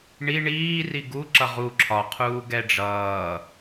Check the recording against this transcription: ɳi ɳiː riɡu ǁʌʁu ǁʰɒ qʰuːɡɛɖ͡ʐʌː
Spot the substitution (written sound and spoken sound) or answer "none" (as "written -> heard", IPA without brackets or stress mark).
none